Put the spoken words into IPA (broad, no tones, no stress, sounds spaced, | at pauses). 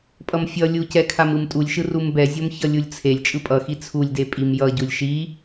pʼ ʌ m fʲ ʌ lʲ u c ɛ kʰ a m ɯ m tʼ u lʲ ʃ ɯ r u m b ɛ zʲ o m ç ʌ lʲ u lʲ t͡sʰ e lʲ t͡ʃʼ ɯ pʼ ʌ x i t͡sʰ u lʲ d e pʼ i m j ʌ ɟ u lʲ ʃ i